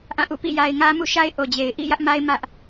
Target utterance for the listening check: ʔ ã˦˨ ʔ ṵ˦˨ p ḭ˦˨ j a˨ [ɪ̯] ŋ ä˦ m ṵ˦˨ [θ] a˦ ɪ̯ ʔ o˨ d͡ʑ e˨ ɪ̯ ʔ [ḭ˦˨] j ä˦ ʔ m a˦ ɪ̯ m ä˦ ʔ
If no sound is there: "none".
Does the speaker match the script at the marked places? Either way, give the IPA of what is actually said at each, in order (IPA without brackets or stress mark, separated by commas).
ɪ̯, ʃ, ḭ˦˨